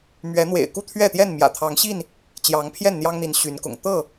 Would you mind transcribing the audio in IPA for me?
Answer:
mɥɛ˨˦n̪wḛ˨˩ɪ̯ ku˥˨t̪ʰɥɛ˥˨t̪jɛ˥˨n mjä̰˨˩t̪ʰɑ˨˦ŋɕi˥˨n | t͡ɕjɑ˨˦ŋpʰjɛ˥˨nn̪jɑ˦ŋn̪i˨˦n ɕy˨˦nkʊ̰˨˩ŋ t̪ɤ˥˨

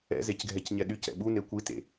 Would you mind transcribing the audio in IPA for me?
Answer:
ɛ̰zecɡʱɛc ɲɛɗyc ɛ̰ɓu nekʷitḛ

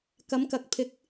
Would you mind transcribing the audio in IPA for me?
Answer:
kɐ˨˧mkɐ˨˥k̚pʰɪ˨˥k̚

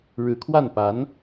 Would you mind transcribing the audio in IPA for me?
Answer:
ɻɻ̩˧˥kʰwa˥˩n pa˧˥n

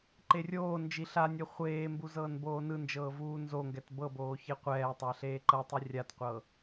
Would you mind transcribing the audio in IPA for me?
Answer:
ǃerʲoːnd͡ʒi ɬanʲɛ χʷeːmbu zɤːnboːnɯnd͡ʒɤː vuːnzoŋɡɛt bɤboː çeqʷɛːtˤa ɬeːǃɤtˤi rʲatqʷɤ

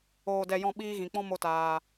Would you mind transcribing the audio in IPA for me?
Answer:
oː˧dɛ˧jɔ̃˦˨ ɓiː˦ɣĩ˨k͡pɔ̃˦ mo˧taː˨

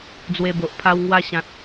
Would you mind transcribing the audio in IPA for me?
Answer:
d͡zwe˧bo˨ʔ pʰa˧wŋwa˧ɕã˨t̚

